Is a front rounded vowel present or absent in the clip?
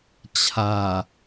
absent